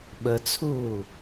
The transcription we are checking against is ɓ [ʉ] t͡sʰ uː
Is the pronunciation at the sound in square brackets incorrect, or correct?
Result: incorrect